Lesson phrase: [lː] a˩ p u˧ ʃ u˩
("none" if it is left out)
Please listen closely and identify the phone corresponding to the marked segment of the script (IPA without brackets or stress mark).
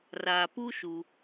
r